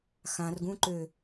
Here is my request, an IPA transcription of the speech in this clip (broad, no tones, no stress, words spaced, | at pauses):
xãrɡũǃø